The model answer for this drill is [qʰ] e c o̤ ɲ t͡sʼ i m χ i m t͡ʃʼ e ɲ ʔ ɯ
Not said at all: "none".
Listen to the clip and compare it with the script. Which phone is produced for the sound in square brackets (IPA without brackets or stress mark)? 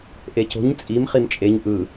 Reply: ʔ